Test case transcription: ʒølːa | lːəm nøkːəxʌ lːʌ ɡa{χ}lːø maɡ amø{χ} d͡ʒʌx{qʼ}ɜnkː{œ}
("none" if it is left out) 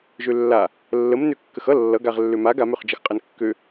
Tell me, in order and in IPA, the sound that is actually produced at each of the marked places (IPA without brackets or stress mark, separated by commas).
ʁ, χ, qʼ, ø